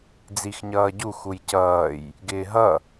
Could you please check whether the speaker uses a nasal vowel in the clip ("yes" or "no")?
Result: no